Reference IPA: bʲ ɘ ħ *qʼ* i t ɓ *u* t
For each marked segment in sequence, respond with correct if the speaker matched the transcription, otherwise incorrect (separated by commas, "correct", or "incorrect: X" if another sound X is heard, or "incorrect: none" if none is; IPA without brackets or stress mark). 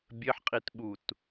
correct, correct